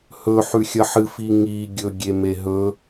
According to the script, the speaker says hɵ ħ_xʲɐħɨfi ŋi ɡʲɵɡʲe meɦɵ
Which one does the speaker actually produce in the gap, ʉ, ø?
ʉ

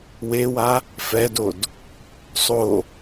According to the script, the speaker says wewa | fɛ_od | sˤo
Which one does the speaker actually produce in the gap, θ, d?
d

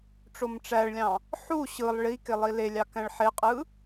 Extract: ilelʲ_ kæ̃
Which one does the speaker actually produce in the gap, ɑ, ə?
ɑ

